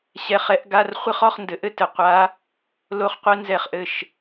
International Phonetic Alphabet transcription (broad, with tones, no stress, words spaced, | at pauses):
ɕɛ˧˥˧χɛ˧˥ʔɡa˧˥˧r χʷɘ˥χɔ˥˧χndɘ˨ʔɘ˥ tɘ˨qʷa˧˥ | lo˥χqʷɛ˥nzɛ˥˩χʔɘ˥˩ʃ